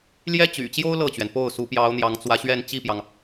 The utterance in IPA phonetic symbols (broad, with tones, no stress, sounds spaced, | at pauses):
l j ɛ˥ t͡ɕ y̰˨˩ t͡ɕ j o˥ ʊ̯ l ɤ˥˩ t͡ɕ ɥ ɛ˩ n p o˥˩ ʊ̯ s u˧˥ p j ɑ˧˥ ʊ̯ n̪ j ɑ˧˥ ŋ t͡s w ä˧˥ ɕ ɥ ɛ˥˧ n t͡ɕ i˥˩ p j ɑ˩ ŋ